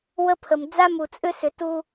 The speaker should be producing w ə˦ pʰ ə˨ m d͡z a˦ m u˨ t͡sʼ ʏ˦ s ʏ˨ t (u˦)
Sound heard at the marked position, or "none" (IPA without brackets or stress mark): u˦